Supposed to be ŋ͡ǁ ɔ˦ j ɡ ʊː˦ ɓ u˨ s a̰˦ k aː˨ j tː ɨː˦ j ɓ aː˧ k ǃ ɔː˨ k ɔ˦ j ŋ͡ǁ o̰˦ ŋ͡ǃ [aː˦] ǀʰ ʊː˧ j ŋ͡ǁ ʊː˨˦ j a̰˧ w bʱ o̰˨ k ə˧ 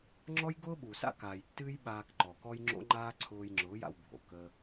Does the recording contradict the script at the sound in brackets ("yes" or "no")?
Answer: no